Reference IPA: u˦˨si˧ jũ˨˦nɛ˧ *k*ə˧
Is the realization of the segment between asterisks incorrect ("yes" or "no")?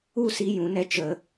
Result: yes